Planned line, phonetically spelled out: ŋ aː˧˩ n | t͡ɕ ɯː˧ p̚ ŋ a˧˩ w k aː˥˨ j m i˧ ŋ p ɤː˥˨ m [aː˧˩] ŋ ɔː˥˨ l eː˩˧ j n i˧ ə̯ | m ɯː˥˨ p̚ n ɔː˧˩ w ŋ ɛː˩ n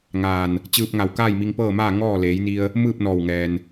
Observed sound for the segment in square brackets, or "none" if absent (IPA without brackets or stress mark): aː˥˨